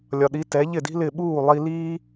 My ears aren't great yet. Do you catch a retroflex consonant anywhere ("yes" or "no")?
no